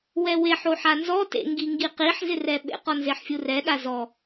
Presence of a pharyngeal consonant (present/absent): present